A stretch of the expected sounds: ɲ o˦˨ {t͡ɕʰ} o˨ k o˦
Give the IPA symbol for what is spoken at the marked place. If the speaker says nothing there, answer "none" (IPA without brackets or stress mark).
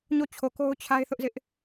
t͡ɕʰ